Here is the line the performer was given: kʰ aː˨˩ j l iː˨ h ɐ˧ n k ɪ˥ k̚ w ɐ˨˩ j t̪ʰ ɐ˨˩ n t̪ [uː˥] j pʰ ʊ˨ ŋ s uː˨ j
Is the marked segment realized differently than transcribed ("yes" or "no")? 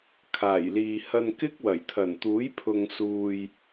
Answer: yes